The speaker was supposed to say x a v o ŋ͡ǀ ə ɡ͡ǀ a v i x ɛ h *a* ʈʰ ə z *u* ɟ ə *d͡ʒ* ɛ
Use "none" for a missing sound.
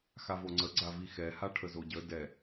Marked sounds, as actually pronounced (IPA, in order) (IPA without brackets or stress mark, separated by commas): a, o, d